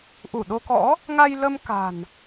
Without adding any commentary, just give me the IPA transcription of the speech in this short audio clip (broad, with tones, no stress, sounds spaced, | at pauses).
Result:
ʔ u˧˩ ɗ o˧ k ɔ̰˧˥ | ŋ a˧ j l ə˧ m k a̤˨˩ n